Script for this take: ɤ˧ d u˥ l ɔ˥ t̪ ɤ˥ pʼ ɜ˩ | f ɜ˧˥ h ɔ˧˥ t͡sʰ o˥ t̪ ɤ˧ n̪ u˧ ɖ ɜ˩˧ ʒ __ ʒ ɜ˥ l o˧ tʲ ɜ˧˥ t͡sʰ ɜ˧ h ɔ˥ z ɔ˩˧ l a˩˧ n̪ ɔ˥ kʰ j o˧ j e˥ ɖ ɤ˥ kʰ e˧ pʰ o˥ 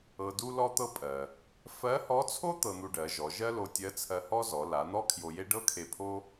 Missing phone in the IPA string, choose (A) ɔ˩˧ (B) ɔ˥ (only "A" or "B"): A